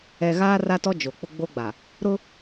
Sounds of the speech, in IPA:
ɛ˨ ɣ aː˦ r a˦ t ɔ˦ d͡ʒ o˨ k͡p ʊ˦ ɡ͡b o˦ ɡ͡b a˨ | ɾ ʊ˦

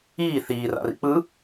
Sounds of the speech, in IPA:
iː θ iː r a̰ r ḭ k͡p ɯ

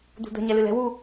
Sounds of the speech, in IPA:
d̪ ṳ d̪ ə̤ ɲ ɛ l ɨ l ɛ̤ w u

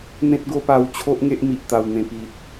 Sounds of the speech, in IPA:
n̪ ẽ˦ t̚ ɡ o˦ p a˧ w t͡ɕʰ o˦ ʔ ŋ e˦ ʔ m i˨ ʔ t̪ a˨˩ w n̪ ẽ˨˩ p i˨ t̚

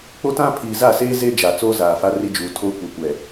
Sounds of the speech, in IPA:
k͡p o˦ t ã˦ pʰ iː˨ z a˦˨ s eː˦ z e˦ d͡ʒ a˨ t͡s oː˦ z aː˨ f a˦ r i˦ d͡ʒ uː˨ tʰ oː˦ kʷ ɛ˨ kʷ ɛ˨

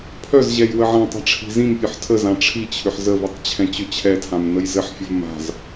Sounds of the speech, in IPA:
pʰ œ z ʑ ɛ j w ə ʕ ã tˤ a̤ ʈ͡ʂʰ i̤ z ĩ m pʲ œ ħ tʰ ə z ã ʈ͡ʂʰ i t͡ɕʰ ʏ ħ z ə v i tˤ t͡ɕʰ ɛ̃ t͡ɕ ʏ t͡ɕʰ ɛ tʰ ã m n ə j z ɘ ħ fʲ ə v m a̤ z

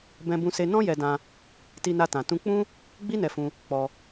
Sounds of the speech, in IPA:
b ɛ̃˧ b ũ˧ s e˧ n ɔ̃˦ j ɛ˧ d ã˧ | t i˧ n a˧ t ã˨ t ũ˧ k͡p ũ˦ | ɡ͡b i˦ n ɛ˧ f ũ˧ | k͡p ɔ˧

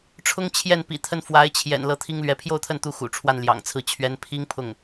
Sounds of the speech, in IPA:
ʈ͡ʂʰ ʊ˥ ŋ t͡ɕʰ j ɛ˥˩ n p ḭ˨˩ t̪ʰ ə˥˩ n f w a˧˥ ɪ̯ t͡ɕʰ j ɛ̰˨˩ n l ɤ˧˥ t̪ʰ i˥ ŋ l ɥ ɛ˧˥ pʰ j o˥˧ ʊ̯ t̪ʰ ə˥˩ n t̪ u˧˥ x ṵ˨˩ ʈ͡ʂʰ w a˥˩ n l j ɑ̰˨˩ ŋ t͡sʰ ɹ̩˥˩ t͡ɕʰ ɥ ɛ˧˥ n pʰ i˥ ŋ pʰ ʊ˥˩ ŋ

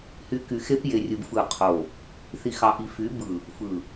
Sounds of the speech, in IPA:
h y˨ k y˨ x e˦ p j e˨ rʲ ɯ˨ b f ɯ˦˨ qʰ o˦˨ | θ i˨ x ɑ˨ ʔ i˨ f y˨˦ b ɯ˨ | f ɯ˨

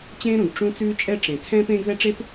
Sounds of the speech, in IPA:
t͡ɕ ẽː˥ ɾ ũ˩ ɡ ʈ͡ʂ ũ˥ t͡s ʉː˥ t͡ʃʼ ɛ˥ ʈ͡ʂ ẽ˩ t͡sʰ ɛ̃ː˥ p ẽː˥ ɡ ð ɛ˥ ʈ͡ʂ e˥ p

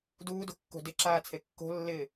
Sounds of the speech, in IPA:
d uː d o̤ kː o̤ d ɪ ǁ aː t͡sʰ e kː o̤ lː ɪː

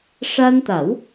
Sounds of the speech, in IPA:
ʂ a˧ n t̪ a˨˩˦ w

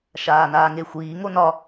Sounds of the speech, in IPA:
ʃ aː n aː ŋ e xʷ iː ŋ o n ɒ

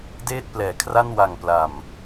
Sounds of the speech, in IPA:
d eː˥˩ t̚ p l ɛː˩˦ kʰ r a˥˩ n w a˨˩ ŋ p l a˨˩ m

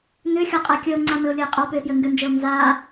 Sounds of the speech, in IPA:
n ʏ xʲ ɔ qʼ a kʲ ə o̯ ŋ͡ǀ a m ɘ o̯ lʲ ɘ e̯ qʼ ɔ p ʏ e̯ p j ɘ ŋ ɡ ʏ n d͡ʒ ɘ o̯ n z a

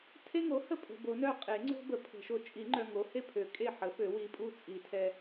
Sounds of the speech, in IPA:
tʰ e˦ ŋ o˩˥ h ə˦˨ pʼ ə̤˨ b o˨˩˦ n œ˦˨ qʼ e˨˩˦ ŋ͡ǀ o̤˦ b ə˨ pʰ ə̤˨˩˦ ʃ o˨ t͡ʃʼ i˨˩˦ ŋ͡ǃ œ˨ ŋ o˩˥ h e˦ pʰ ø˩˥ kʼ e˦˨ ħ ə˩˥ f ø˨˩˦ w i˨ pʼ u˦˨ t͡sʼ i˨˩˦ tʰ ɛ˨

